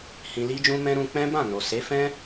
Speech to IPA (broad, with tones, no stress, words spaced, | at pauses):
hĩ˧li˦d͡ʒũ˦mɛ̃˦ ɾũ˧k͡pɛ̃˦bã˦˨no˨ se˨˦fɛ̃˦